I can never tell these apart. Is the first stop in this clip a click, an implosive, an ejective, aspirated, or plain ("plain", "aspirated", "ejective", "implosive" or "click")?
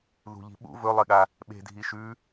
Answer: implosive